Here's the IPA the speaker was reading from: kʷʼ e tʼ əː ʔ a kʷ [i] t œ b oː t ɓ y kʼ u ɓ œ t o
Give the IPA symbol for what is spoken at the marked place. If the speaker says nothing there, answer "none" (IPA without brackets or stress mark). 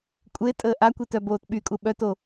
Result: i